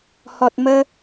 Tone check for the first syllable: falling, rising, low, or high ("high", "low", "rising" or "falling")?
low